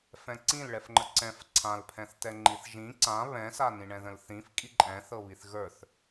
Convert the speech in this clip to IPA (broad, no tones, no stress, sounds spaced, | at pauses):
f ɛ̃ ǀ ĩ l ɭ ɛ f ŋ͡ǃ ə ǀ ɛ̃ f ǀʰ ã l pʰ ɛ̃ θ t ɛ ŋ͡ǃ i θ ʒ ĩ ǀ ã β ɛ̃ s a n ĩ ɳ ɛ̃ ð ə̃ l θ ĩ f kʼ i ǃʼ ɛ̃ θ ɤ β i θ ɣ ə˞ θ